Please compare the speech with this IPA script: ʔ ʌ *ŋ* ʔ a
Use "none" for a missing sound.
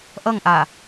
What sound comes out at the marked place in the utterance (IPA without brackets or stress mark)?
ŋ